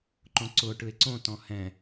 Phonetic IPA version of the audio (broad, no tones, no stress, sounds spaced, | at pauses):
ǃ õ ǀ ʊ ʈ ɯ e̯ ǀ õ t ɔ̃ h ɛ̃